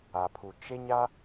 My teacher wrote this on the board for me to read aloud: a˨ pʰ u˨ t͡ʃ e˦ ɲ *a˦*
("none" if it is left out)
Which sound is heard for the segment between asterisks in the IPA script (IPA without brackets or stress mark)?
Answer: a˦